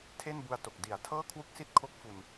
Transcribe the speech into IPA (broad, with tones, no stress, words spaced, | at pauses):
tʰe˥˩nbu˧a̯ to˨˩k̚ di˩˦a̯ tʰɤː˥˩kʰwu˥˩k̚si˥˩t̚kʰo˦˥k̚ fu˧n